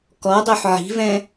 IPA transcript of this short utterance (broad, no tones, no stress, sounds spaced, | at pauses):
k ɔ dˤ o ħ ʕ i̤ v ɛ̃